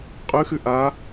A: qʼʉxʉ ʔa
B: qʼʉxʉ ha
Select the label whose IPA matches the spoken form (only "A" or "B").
A